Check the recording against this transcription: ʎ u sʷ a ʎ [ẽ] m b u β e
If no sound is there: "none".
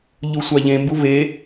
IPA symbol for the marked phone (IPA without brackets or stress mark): ẽ